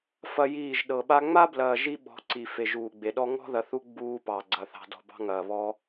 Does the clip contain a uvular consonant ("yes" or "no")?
no